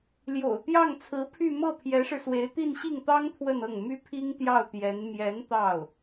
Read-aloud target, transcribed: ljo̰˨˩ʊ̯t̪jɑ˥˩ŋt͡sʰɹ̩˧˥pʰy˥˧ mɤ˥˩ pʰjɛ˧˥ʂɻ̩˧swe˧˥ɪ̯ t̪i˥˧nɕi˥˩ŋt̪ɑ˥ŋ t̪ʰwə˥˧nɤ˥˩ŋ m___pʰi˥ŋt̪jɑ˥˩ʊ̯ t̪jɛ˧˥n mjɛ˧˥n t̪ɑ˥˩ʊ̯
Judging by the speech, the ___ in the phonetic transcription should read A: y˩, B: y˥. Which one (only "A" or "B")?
B